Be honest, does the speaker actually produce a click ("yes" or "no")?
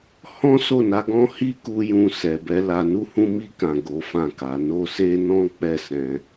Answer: no